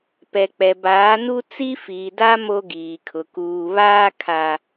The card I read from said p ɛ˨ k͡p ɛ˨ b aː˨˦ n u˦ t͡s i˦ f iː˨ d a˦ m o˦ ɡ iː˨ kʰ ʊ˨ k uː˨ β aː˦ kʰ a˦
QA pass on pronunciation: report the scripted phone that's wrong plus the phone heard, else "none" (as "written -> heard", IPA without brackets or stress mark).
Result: none